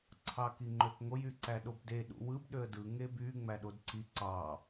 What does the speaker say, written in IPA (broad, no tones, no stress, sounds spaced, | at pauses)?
ǀʰ ɑ k i ŋ͡ǃ ø k ŋ o j y ǀ æ ɗ o b d e ɗ ṵ w ɯ b ɗ ø ə̯ d ɯ ŋ e b y ŋ͡m æ ɗ o d ǀ i ǀ ɑ